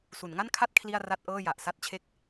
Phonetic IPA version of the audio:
s u˩˦ n ŋ a˥˩ n kʰ a˥˩ t̚ kʰ l i˥˩ a̯ r a˥˩ t̚ ʔ ɤː˥˩ j a˨˩ ʔ s a˥˩ t̚ t͡ɕʰ e˥˩ k̚

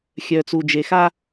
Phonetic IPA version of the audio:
xʲ œ˨ t͡s u˨ d͡ʒ e˨ x a˦

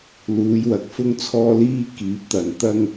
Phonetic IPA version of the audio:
l uː˨˧ j w ɐ˨ k̚ f ʊ˥ ŋ t͡sʰ ɔː˥ l iː˥ k iː˨˥ p̚ t̪ ɐ˨ n t̪ ɐ˥ ŋ

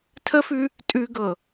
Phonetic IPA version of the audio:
tʰ ə f ʉ | tʼ ʉ ɡ ɤ

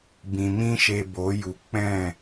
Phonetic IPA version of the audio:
b ĩ˨ m ĩ˦ ʃ e˧ b o˨˦ j u˨ k͡p ɛ̃˦˨

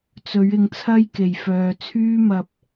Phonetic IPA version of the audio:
t͡s ɵ˨˧ ɥ ɪ˧ ŋ t͡sʰ ɐ˥ j k e˨˩ j f œː˧ t͡sʰ yː˥ m ɐ˧ p̚

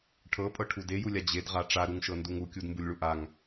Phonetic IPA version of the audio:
ʈʰ ɤ pʼ ɤ ʈʰ u d e j u lʲ a d͡ʑ e d ʁ a ʈ͡ʂ a ɾ u ŋ ʃ ɤ n d u ŋ u kʲ u d m b u lʲ ɭ u ʔ a ŋ

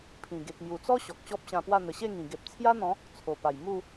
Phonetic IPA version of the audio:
pʰ ĩ˨˩ ɡ e˨ k̚ m j u˨˩ t͡s ɔ˦ ɕ ɔ˨ k̚ ɕ ɔ˦ p̚ ɕ ã˧ p w a˥˧ n̪ ə˨˩ ɕ e˥˧ ŋ ĩ˨˩ ɡ e˨ p̚ t͡sʰ j a˦ n̪ ɔ̃˨˦ | t͡sʰ o˨˩ p a˨˩ j m u˥˧

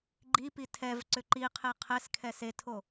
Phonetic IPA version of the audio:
ɡ͡ǃ i p i tʰ ɛ v ǀ ʏ ǃ i qʰ e qʰ ɛ s kʰ ɛ s e tʰ o

